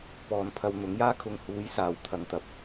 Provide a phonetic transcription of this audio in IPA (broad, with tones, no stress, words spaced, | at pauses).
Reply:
pɔː˨n pʰɐ˧wn̪ʊ˨˥ŋjaː˥kʰʊ˧ŋ huː˨˥jsaː˨w t̪ʰɐ˨˧ŋt̪ɐ˨p̚